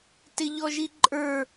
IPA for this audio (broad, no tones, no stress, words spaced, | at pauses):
tɪʎɔʒiǃʼə˞